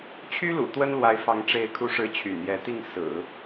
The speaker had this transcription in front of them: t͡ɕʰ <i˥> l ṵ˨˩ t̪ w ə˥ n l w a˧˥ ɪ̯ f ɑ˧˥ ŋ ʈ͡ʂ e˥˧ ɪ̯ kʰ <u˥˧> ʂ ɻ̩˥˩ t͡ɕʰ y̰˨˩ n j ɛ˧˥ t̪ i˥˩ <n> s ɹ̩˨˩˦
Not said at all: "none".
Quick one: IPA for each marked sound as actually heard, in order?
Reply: y˥, u˥˧, ŋ

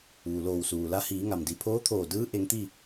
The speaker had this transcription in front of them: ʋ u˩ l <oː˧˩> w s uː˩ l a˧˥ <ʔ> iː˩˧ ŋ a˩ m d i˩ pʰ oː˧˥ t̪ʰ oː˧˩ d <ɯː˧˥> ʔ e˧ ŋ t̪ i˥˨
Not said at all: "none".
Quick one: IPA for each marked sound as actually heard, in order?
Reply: oː˧˩, h, ɯː˧˥

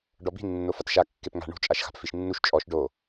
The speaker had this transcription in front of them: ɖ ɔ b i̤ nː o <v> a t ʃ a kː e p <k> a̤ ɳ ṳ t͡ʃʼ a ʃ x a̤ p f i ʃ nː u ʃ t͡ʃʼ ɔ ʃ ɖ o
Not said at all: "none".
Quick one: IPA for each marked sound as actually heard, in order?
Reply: f, ŋ

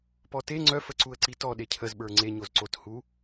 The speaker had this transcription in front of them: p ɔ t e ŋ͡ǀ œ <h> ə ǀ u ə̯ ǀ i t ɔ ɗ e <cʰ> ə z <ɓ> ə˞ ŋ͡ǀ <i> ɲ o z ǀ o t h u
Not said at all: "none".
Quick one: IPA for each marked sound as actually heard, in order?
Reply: f, cʰ, ɓ, e

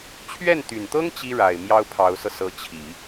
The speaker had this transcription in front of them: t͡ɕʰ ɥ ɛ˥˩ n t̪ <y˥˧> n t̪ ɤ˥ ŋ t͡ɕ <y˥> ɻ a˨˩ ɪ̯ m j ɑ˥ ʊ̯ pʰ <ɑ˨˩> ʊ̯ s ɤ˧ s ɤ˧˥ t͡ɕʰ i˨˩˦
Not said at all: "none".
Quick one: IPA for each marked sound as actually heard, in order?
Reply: y˨˩, i˥, ɑ˧˥

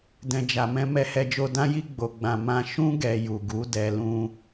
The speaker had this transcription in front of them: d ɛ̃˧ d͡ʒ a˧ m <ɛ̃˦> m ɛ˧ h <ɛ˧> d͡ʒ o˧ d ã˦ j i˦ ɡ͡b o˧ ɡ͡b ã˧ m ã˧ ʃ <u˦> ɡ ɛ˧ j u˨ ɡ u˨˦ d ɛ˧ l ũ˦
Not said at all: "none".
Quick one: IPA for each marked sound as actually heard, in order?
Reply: ɛ̃˦, ɛ˧, ũ˦

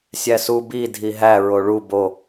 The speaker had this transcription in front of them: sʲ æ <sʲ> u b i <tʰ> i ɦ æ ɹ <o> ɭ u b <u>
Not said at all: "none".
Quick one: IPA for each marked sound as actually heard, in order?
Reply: s, dʱ, o, o

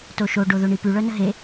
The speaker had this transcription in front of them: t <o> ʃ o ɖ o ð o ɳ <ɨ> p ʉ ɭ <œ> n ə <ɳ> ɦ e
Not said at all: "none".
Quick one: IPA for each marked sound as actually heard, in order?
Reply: o, i, œ, none

